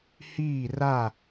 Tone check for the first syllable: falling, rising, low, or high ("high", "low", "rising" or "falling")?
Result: falling